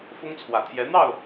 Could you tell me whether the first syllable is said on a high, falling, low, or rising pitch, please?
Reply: high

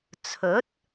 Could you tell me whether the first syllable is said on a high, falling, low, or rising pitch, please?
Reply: rising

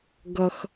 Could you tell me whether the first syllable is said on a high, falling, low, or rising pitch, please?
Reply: low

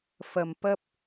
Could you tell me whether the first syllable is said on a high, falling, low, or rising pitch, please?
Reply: low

